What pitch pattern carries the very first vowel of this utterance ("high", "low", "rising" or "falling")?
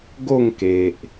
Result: falling